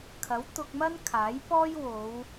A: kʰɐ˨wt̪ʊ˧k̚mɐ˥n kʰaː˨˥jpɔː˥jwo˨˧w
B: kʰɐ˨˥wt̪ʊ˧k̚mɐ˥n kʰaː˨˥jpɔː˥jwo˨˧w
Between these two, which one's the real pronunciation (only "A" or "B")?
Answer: B